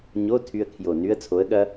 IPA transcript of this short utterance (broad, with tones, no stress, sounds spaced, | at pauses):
ɲ o˧˥˧ tʰ y˧ ə̯ kʰ j o˨˩ n y˦˥ ə̯ t͡sʰ o˨˥ ə̯ ɠ ɐ˦˥